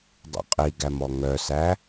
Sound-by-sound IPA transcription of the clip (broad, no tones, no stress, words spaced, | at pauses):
dˤṵqʼiɡæm ɔŋœsæ